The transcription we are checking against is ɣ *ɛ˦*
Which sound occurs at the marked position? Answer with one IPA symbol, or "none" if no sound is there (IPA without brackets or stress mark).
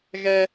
ɛ˦